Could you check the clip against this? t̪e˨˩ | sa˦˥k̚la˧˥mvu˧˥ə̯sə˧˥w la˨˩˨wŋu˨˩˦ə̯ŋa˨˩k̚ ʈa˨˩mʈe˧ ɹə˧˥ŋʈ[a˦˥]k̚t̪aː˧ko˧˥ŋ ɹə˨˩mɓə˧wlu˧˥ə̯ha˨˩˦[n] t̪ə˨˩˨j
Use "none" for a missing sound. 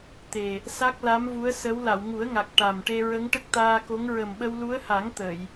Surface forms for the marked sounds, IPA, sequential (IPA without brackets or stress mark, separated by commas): ə˦˥, ŋ